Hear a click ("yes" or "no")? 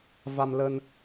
no